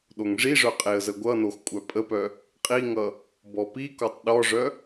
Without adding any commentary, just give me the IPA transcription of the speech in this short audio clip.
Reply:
ɗoŋʐiʐœ qʼeə̯zəɡʷʌnox kʷʼœpʼəpœ | qʼiŋʌ | bɔpikɔtˤ ɗɔʐœ

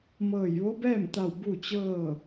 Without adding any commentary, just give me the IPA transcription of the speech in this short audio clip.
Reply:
mɤː˧˩jʋo˧˥bɛː˥˨mt̪a˧˩w bu˥˨t͡ɕɤː˥˨

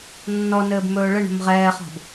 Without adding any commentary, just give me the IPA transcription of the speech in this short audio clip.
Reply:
nːɔnɘːb mɵːɭɘɳə̤m ʁɛːχɔ̤b

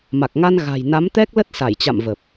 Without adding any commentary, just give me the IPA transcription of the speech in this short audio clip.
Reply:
ma˨˩k̚ŋa˧n ɣa̤˨˩jna˨˦mt̪ɛ˦˥k̚ lə˦˥t̚sa˧˩jt͡ɕa̰˧˨m və˨˩p̚

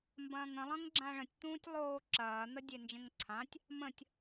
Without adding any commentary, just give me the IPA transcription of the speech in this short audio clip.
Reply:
mbɐ̃ːŋə̃ lˠɐ̃ŋɡ͡ǁãɭə̃tʲ t̪ũːtʲlˠoː ǁɐː n̪ədʲend͡ʒə̃ŋǀʰãtʲ | mə̃tʲ

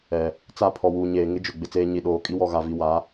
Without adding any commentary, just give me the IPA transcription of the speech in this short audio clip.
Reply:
ɛ˨ | t͡sa˦˨ pʰɔ˨wuː˨ɲeː˨ ŋɪ˦d͡ʒʊ˨ ɡ͡bɪ˨t͡seː˦ ɲi˨ ɗoː˨ kʼi˦wɔ˨ɣa˨vi˨ wa˨˦

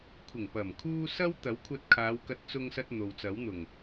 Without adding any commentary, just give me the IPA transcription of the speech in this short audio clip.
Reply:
kʷʰɪ˨˩ŋpɐ˨˩m kʰuː˥ sɐ˥w t̪ɐ˨˥wkʷʰɐ˧t̚kʰaː˨˧wkɐ˧t̚ t͡sʊ˧ŋsɐ˧t̚ n̪o˨wt͡sɐ˨˥wn̪ʊ˨˩ŋ

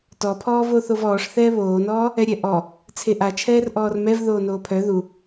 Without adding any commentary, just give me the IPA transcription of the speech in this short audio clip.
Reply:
tɔpʰɔːvo θovɔːʂθɛː βoːnɔː | ɛɾʲɛʔɔ | t͡sʰeʔa t͡ʃʰɛːrʔɔːrmɛv ðoːnoːpʰœ ðu

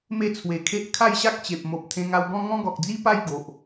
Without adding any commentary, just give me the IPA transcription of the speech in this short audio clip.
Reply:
me˥˧t͡sʰwe˨˩kʰe˦ʔ kʰa˥˧jɕa˦k̚t͡ɕe˨p̚mo˨p̚ t̪ʰẽ˧ŋa˧wɡɔ̃˦ ŋɔ̃˦ɡɔ˨k̚d͡zi˦pa˥˧j ɡo˨ʔ

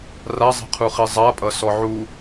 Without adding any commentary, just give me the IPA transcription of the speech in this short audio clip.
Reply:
razˤi̤qʰuχi zˤapʼʌsɔ ʕu

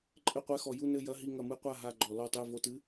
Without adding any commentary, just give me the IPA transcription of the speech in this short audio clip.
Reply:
ǃʼɘ˦˨qʷɛ˦˨xɔ˧˩˧ ju˦˨nɘ˦˨jɐ˧˥˧ɦi˦˨ ŋɐ˧˩˧mɨ˧˥˧qʷa˦˨ɦa˦˨ ɡ͡ǃɔ˧˩˧lɔ˦˨ tˤɨː˦˨vo˧˥˧tɨ˧˥˧

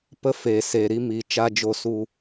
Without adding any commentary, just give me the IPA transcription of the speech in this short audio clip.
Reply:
pə˧ feː˨ seː˨ɾi˧miː˨ t͡ʃa˧d͡ʒo˧su˧

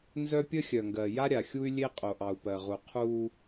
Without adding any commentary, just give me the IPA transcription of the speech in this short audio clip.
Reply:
nzœ˦pʲə˦xʲœ˨ŋɡɜ˨ ja˦ɾʲa˨xʲu˦y̯ lʲe˦qʼo˨ʔɑ˨u̯ pɜ˨ʁu˨qʰuː˦

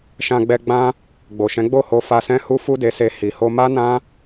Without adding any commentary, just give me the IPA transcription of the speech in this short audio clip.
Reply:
ʃã˧ɡ͡bɛ˧ ɡ͡bã˦ | ɡ͡bo˨ʃɛ̃˨˦ ɡ͡bo˦˨ho˧fa˧ sɛ̃˦hu˦ fu˦de˧se˧ hi˨ho˧ma˦nã˦

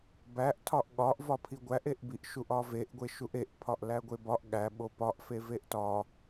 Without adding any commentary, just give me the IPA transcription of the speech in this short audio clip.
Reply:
bæʔ tʰɒʔɠɒʔ vɒpʰiɡʷæʔ eʔbiʔʃuʔ ɒveʔɡʷe ʃuʔeʔpʰɒʔ læɡʷebɒʔ ɠæɓo pɒʔ feveʔtɒ

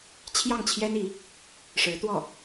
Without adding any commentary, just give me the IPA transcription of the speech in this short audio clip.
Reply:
t͡ɕʰjɑ˥˩ŋt͡ɕʰjɛ˥ni˧˥ | ʂɻ̩˧˥t̪wɔ˥˩

